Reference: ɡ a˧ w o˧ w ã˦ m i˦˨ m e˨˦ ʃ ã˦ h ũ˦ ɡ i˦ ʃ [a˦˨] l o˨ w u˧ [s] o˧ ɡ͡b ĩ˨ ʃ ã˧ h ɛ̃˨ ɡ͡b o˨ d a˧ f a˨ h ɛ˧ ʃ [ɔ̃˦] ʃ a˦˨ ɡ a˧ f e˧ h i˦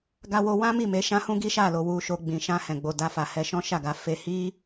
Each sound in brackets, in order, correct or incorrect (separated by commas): correct, incorrect, correct